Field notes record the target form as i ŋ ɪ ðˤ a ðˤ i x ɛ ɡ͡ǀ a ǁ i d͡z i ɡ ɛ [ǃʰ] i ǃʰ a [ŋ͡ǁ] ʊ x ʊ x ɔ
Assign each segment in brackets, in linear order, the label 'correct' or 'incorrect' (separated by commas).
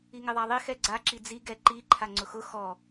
incorrect, incorrect